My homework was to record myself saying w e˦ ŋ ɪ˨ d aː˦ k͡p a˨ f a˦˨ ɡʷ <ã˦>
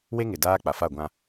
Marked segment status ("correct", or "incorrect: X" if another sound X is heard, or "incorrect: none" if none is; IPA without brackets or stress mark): correct